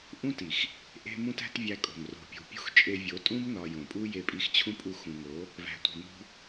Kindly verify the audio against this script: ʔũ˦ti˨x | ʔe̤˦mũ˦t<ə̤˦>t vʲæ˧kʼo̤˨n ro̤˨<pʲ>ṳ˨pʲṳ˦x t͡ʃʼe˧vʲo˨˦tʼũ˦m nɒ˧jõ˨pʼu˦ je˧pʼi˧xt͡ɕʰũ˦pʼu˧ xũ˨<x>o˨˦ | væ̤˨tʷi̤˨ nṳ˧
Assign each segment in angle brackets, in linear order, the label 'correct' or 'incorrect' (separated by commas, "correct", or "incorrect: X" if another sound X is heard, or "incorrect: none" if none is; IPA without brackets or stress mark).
incorrect: æ̤˦, correct, incorrect: ŋ